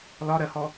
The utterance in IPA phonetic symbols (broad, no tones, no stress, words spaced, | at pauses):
lɒɾɜhɔ